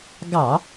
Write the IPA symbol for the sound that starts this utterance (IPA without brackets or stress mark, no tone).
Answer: ɡ